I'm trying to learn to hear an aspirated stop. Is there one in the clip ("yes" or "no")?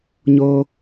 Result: no